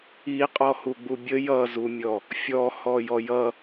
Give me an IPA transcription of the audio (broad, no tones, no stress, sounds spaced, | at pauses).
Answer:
i qʼ ɔ h u ɡ͡b u bʲ ə j ʌ z u mʲ ɔ | fʲ ɔ h ɔ j ɔ j ʌ